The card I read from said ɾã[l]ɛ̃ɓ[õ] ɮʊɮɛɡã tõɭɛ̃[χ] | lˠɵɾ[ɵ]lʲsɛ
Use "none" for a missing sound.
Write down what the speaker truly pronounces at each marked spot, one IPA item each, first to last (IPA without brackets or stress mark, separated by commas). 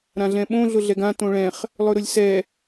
ɮ, õ, χ, ʊ